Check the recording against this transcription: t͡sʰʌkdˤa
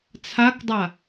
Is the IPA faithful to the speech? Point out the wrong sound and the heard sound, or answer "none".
ʌ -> a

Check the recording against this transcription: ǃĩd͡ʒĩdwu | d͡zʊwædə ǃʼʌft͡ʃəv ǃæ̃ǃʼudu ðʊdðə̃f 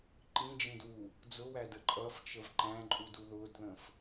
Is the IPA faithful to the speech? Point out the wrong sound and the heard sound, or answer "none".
none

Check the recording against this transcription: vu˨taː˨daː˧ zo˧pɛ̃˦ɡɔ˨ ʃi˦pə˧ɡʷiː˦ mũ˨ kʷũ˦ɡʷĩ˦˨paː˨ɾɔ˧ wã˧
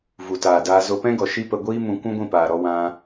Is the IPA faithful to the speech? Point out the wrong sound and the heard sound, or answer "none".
none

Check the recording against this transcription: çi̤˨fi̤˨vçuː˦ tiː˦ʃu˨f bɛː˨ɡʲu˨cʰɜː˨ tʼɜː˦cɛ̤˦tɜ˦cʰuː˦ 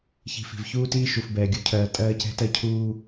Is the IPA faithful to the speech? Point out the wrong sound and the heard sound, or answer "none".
none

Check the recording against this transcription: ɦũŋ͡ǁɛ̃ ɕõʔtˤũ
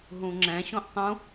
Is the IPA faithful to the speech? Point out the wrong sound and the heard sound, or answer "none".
none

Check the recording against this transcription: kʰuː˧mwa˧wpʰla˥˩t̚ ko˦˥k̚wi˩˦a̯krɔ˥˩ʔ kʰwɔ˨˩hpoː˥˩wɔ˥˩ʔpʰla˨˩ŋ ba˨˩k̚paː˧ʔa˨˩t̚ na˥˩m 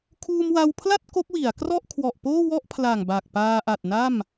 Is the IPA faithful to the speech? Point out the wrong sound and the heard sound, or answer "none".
h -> ʔ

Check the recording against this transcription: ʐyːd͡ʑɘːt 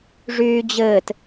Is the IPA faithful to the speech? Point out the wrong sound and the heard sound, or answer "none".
none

